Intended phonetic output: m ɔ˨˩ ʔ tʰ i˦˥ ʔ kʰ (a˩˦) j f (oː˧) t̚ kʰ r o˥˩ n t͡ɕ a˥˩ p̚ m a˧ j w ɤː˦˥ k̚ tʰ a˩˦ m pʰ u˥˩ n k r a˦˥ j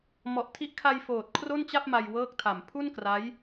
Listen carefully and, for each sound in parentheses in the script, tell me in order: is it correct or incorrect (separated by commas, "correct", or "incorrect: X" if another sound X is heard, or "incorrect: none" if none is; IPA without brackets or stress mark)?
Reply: incorrect: a˧, incorrect: oː˨˩